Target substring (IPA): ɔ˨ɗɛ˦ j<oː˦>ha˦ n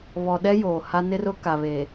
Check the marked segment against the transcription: incorrect: oː˨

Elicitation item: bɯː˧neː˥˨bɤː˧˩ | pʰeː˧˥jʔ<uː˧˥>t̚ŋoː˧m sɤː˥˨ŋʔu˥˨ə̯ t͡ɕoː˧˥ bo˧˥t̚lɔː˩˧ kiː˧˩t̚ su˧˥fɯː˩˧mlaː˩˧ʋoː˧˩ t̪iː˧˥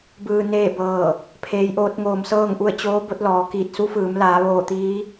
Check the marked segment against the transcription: incorrect: oː˧˥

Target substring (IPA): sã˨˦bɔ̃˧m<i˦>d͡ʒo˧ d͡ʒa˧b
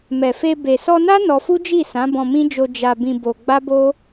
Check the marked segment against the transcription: incorrect: ĩ˦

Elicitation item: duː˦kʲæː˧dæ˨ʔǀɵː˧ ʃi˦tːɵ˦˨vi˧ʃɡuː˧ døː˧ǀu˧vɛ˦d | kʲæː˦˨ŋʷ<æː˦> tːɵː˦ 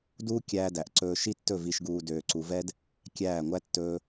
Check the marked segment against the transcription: incorrect: æ˦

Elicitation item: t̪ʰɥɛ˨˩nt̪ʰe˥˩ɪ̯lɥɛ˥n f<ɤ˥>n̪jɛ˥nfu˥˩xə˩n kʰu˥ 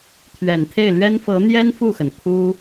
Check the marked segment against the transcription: incorrect: ɤ˧˥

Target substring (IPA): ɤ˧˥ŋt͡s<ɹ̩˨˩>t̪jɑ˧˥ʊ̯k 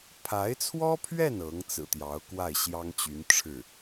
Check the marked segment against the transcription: correct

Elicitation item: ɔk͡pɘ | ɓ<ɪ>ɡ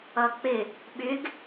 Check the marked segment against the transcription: incorrect: ʏ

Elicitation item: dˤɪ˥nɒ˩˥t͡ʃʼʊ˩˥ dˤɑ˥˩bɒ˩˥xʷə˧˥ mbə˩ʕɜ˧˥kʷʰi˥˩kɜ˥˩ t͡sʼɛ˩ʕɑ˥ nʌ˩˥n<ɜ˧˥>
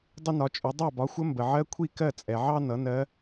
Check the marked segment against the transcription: correct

